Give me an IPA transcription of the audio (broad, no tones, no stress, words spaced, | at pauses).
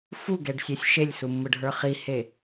fuɡɛɖsʲesʲ ʃelʲsumːɯɖʱə˞ χihe